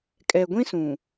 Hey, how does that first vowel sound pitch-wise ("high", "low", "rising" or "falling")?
low